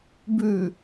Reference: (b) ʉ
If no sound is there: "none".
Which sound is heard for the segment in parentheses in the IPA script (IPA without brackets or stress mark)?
b